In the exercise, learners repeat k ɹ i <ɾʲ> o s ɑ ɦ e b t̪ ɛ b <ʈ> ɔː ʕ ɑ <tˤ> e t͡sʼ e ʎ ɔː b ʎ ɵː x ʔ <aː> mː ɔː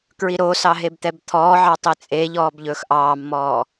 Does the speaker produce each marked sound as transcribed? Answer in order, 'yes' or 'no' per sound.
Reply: no, no, yes, no

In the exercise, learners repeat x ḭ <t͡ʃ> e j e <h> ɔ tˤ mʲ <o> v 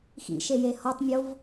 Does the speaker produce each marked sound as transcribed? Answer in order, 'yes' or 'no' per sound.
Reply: no, yes, yes

